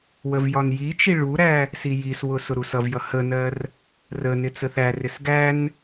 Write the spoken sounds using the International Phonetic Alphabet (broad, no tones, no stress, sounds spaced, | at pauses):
w ə v j ɒ n j i t͡ʃ i ɭ u ɾ æ | s i j i s w ʊ s ʊ ɾ u s ʌ v j ʌ h ə n ɜ r | r ə n ɪ t͡s ə θ æ r ɪ s ɡ æ n